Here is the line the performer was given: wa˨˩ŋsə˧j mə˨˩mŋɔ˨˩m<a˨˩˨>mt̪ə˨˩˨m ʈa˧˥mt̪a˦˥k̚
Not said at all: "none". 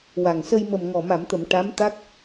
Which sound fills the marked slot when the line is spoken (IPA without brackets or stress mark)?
a˨˩˨